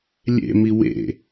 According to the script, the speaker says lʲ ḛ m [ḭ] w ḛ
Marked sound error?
yes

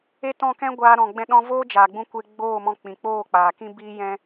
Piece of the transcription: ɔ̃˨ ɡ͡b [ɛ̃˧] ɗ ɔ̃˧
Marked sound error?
no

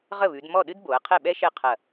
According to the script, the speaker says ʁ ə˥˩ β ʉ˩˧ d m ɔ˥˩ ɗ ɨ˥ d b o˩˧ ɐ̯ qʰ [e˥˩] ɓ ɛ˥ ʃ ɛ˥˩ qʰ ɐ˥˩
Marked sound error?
yes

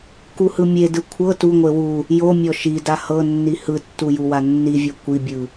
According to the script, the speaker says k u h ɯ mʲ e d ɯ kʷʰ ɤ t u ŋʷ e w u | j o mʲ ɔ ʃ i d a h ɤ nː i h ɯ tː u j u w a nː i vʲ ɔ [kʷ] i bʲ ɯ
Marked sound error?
no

